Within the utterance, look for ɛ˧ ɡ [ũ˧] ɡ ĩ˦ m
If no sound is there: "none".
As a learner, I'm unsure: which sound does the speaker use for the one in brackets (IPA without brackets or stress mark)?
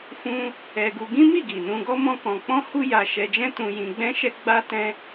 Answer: u˧